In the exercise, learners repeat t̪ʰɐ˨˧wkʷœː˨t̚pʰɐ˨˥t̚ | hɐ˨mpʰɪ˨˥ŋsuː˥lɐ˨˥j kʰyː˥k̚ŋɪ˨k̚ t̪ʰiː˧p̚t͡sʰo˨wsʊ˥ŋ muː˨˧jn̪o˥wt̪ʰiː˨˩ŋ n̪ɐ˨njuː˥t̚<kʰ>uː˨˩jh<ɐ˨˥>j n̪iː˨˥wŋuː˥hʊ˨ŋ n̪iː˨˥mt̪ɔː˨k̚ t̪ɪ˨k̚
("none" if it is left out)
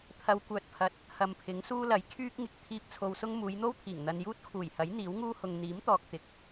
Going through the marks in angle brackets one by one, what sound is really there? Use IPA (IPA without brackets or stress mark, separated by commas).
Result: kʰ, ɐ˨˥